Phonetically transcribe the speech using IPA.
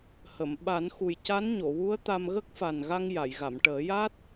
hə˨˩˨m ɓa˨˩˦nxu˨˩j ca˧˥nɲo˨˩˨wu˧˥ə̯ t̪a˧m ɣə˦˥k̚fa˨˩nɣa˧ŋ ja˨˩˨jɣa˨˩˨m ʈəː˨˩˦ja˦˥t̚

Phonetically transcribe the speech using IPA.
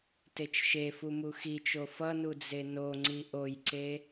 tet͡ʃʃefu muxit͡ʃo fʌnu d͡zenoŋ͡ǀi ʔojǀe

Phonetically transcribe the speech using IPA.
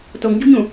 toŋɟṳɲũ

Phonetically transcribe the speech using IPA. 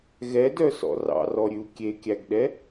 ɣɛdœsɔ̰ rɑ̰rɔɾʲʉu̯ kʲekʲæɡɗɛ

